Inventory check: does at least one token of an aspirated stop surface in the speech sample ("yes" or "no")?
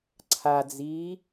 yes